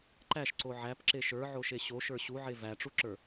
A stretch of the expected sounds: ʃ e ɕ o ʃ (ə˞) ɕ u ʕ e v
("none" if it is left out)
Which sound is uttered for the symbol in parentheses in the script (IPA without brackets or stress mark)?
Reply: ə˞